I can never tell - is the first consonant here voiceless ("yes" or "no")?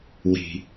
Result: no